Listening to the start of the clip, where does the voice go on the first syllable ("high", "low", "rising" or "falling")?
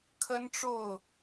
high